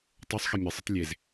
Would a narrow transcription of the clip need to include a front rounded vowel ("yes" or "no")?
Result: no